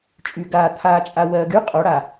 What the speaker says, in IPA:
t͡ʃʼy˨ɡaː˨ t̪ʰaː˨t͡ʃʼa˨wɜː˨ɡ y˦ qʼo˨˦ɽa˨

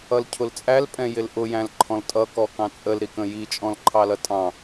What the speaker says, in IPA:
ʌlcʰʊlt͡sʼæl pʼɛ̃jɪlʔʊ jæ̃lǃʰɔ̃ltʼʌ kɔkɑ̃t͡sʼəl ɾikə̃ji t͡ʃʼɔ̃lǃʰɑlʌtʼɑ̃

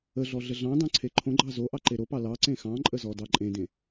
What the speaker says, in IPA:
əɮɔ ɮəɮɑ̃dɑ̃ ǀʰeǃʰõɡ͡ǃɑ zo ʔɑǃeɾopɑ lɑ ǀẽxɑ̃ǃʼə zɔdɑǃʼẽdẽ

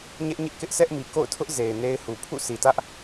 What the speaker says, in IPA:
ɲɛ˦ʔɲɪ˦ʔ kɪ˦ʔsʰɛ˦ʔmi˨ ko̰˦˨ʊ̯tʰʊ˦ʔ ze˨ɪ̯ne˦ɪ̯hu˨ pʰṵ˦˨sʰi˨tä˦ʔ

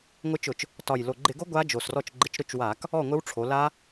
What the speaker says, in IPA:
ŋʷɪ˦˥t͡ʃʊ˧˩˧t͡ʃ | tɒ˨˩jlo˨˩ ɡ͡ǃɪ˧˩˧ɡo˦˥ ɡʷa˦˥ d͡ʒo˨˩srɔ˥˨t͡ʃ ɡ͡ǃɪ˧˩˧t͡ʃɾʊ˦˥t͡ʃwa˧˩˧k | ɔ˥˨ŋʷɪ˦˥wʈ͡ʂʰo˩˧ la˦˥

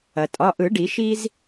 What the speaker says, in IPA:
ɐ˩tʼɒ˩˧˩ʔɯ˨˩˦ɖi˨˩˦ ʃi˦z

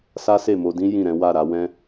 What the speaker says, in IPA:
sa˦se˦˨mo˧dĩ˦ jĩ˦˨ɾɛ̃˨˦ wa˦˨ɾa˧wɛ̃˦

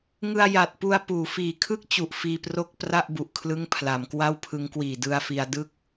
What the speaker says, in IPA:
ŋɯ˧a̯ja˨˩t̚pu˧a̯ puː˩˦fiː˨˩kʰɯ˥˩k̚t͡ɕu˨˩ʔ fiː˧pro˥˩k̚ pra˥˩ʔbu˨˩ʔ kʰlɯ˦˥ŋ pʰla˩˦mkwa˥˩wpʰɯ˦˥ŋ kwiː˨˩dɯ˧a̯fi˧a̯ dɯ˥˩k̚

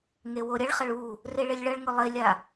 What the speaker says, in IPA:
ŋewoɾʲɐɭχɐɭ u | reɭelʲɭɐɭŋʊ lˠelʲa

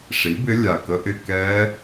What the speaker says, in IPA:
ʂi˨˥bɪ˦˥ lʲa˧˩kə˦˥ʔɪ˥˧ kɛ˦˥

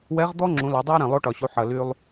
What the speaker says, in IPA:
wɛ˧˥ʁd̪ɔ˥ ŋ͡ǁũ˩˧la˩˧dˤɛ˥ə̯ ɾɛ̃˩lˠo˧˥ʈɒ˩ɕu˩˧ ħɐ˩ly˧lˠ

